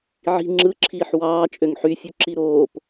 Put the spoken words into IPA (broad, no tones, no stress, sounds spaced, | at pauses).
ʕ i̤ ŋ͡ǁ ɯ ǁʰ iː ħ w ɑː t͡ʃʼ ø ŋ ħ y fʲ u ǁ i ɾ oː p